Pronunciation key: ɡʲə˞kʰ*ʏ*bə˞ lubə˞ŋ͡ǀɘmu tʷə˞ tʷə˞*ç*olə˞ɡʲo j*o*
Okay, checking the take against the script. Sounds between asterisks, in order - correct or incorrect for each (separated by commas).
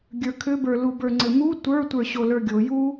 correct, incorrect, incorrect